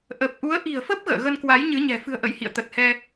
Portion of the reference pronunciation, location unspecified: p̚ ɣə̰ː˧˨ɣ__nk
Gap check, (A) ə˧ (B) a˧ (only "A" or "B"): A